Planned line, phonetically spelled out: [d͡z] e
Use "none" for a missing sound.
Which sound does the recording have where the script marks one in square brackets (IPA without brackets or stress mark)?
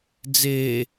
d͡z